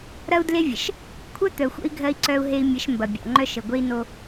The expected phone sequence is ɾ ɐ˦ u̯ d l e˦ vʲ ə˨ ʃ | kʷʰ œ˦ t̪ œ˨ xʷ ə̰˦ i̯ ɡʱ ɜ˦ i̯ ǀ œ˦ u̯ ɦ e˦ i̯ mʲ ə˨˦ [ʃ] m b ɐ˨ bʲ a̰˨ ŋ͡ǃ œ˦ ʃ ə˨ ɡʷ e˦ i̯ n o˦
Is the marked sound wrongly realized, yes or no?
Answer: no